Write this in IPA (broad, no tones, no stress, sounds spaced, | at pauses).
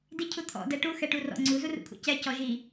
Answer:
d i cʰ u t̪ʰ ɔ̰ d ɛ ʈ u x ɛ ʈ u r ɔ̰ ŋ͡ǀ u z u r ṵ kʰ ṵ c ɛ c ɔ ʒ i